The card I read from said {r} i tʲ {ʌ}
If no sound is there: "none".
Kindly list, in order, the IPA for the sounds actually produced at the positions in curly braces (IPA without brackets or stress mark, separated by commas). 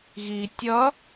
ɣ, ʌ